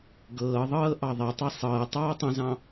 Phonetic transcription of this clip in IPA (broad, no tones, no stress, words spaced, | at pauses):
ɡɤːðˤɤː ʔɑðˤetˤe sˤɤː tˤɑːtˤə̃zɑ̃